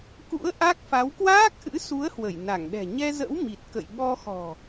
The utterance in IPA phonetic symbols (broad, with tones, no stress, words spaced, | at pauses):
kṵ˧˥ə̯ ʔa˦˥k̚fa˨˦w kwaː˦˥k̚ʔɨ̰˧˥su˨˦ə̯ hwə˧˩jna˧˩ŋɗɛ̤˨˩ ɲɛ˧zə̰˧˥w mi˨˩t̚kə̰˧˨j ɓɔ˧xɔ̤˨˩